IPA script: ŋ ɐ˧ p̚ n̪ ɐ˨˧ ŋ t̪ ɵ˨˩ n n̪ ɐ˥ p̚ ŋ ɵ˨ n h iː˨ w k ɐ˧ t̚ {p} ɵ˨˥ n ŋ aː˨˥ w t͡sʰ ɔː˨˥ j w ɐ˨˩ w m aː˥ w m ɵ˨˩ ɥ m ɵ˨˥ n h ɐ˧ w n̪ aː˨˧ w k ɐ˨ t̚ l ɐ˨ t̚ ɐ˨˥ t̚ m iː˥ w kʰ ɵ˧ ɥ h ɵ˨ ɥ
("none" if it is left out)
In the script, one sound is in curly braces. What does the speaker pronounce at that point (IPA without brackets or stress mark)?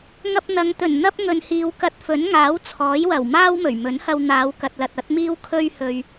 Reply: f